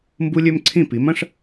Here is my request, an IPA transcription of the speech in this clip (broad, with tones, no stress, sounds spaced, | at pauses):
m b u˥ lʲ ø˥ m ǀʰ ĩ˥˩ p i˩˥ m ɐ̃˥ ʂ